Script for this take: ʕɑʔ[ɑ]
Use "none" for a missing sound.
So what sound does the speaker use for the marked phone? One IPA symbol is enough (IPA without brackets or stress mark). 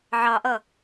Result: ʌ